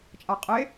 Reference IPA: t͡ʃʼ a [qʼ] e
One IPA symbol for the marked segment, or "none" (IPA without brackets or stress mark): qʼ